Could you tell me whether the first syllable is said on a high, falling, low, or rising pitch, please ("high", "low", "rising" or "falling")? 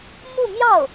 falling